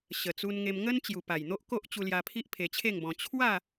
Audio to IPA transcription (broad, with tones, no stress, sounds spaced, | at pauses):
ɕ ə˨˩ t͡s u˧ n ŋ e˧ m ŋ ə˦ n t͡ɕ j u˨˩ p a˨˩ j n̪ o˦ ʔ k o˦ ʔ t͡ɕ u˧ l j a˧ pʰ i˦ ʔ pʰ e˧ t͡ɕʰ e˥˧ ŋ b ɔ̃˧ t͡ɕʰ w a˥˧